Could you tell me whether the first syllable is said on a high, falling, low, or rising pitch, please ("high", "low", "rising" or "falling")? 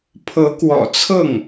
rising